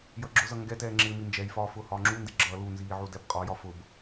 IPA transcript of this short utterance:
j ʌ ɡ͡ǁ ʊ z ʌ ŋ ɡ ɛ t ɛː ŋ͡ǁ ɪː m i n d͡ʒ ɛ j f ɒː f ʊː h ɒː ŋ͡ǁ u n d ɪ ɡ͡ǁ ʌː l u n z iː ʕ u d ɛ b qʼ ɒ j ɒ f ʊ b

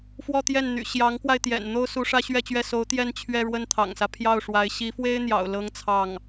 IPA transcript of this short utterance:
f w ɔ˥˧ t̪ j ɛ˥˩ n n̪ y̰˨˩ ɕ j ɑ˧˥ ŋ k w a˧ ɪ̯ t̪ j ɛ̰˨˩ n n̪ o˥ ʊ̯ s u˧˥ ʂ ä˥ ɕ ɥ ɛ˥˧ t͡ɕ ɥ ɛ˥˩ s o˧˥ ʊ̯ t̪ j ɛ˥˧ n t͡ɕʰ ɥ ɛ˥˧ ɻ w ə˥˩ n t̪ʰ ɑ̰˨˩ ŋ s ä˦ pʰ j ɑ˥˩ ʊ̯ ʂ w a˧˥ ɪ̯ ɕ i˧˥ f w e˥ ɪ̯ n̪ j ɑ̰˨˩ ʊ̯ l ɤ˥ ŋ t͡sʰ ɑ˥˩ ŋ

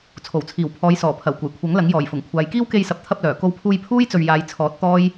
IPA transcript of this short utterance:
t͡sʰ o˨˩ w t͡sʰ iː˨˩ w pʰ ɔː˨˧ j s ɔː˨˩ pʰ ɐ˨˩ w kʷ ɐ˨˩ j kʷʰ ɐ˨˥ ŋ l ɐ˨˥ ŋ j ɔː˨˩ j f ʊ˨˩ ŋ kʷʰ aː˨˧ j k iː˥ w k e˧ j s ɐ˨ p̚ t̪ʰ ɐ˧ p̚ l œː˨˩ k o˧ w pʰ uː˧ j pʰ uː˥ j t͡s ɵ˨ ɥ j aː˨˧ j t͡sʰ ɔː˨˥ t̚ t̪ ɔː˥ j

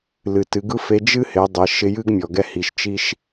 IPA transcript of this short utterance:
l ɨ˩ t ɨ˩˧ ɡ ɯ˥ f e˧˥ d͡ʒ ɨ˥ h ɪ˩˧ dˤ ɪ˩˧ ʃ ɪ˧ j ɨ˥ ɡ mʲ ɔ˩ ɡ ɛ˧ h i˩ ʃ t͡ʃ i˧ ʃ

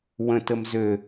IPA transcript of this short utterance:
w ə̃ t ə m z ø

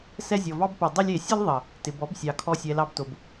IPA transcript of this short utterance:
s ɛ˧ zʲ ɔ˨ v ɑ˧ b p o˨ dˤ ɪ˧ lʲ e˨ sʲ ə˦ l ðˤ ə˨ | t ɪ˨ b ɔ˨˦ b sʲ ɑ˨ kʰ ɔ˧ sʲ ɛ˨ l ɑ˧ b t o˨ b

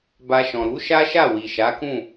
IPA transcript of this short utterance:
b a˧ ʃ ɔ̃˨ ɾ u˨˦ ʃ a˦ ʃ a˦˨ w i˨ ʃ a˨˦ k ũ˦˨

